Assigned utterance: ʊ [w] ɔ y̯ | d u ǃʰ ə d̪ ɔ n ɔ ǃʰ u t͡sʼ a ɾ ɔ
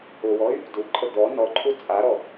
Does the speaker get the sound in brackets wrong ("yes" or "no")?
no